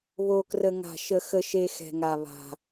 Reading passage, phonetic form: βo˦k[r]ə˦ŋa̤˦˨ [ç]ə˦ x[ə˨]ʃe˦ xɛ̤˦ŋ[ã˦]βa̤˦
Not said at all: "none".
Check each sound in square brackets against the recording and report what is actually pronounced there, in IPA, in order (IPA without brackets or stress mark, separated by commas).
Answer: r, ʃ, ə˦, a˦